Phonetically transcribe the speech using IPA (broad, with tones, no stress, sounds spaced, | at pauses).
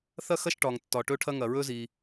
θ ɐ˥ x ɐ˥ ʃ ʈ ɒ˩ ŋ tː ɒ˩ ʈ ɵ˥ ʈʰ ɐ˥ ŋ ɐ˩ ɹ ɵ˥ z i˩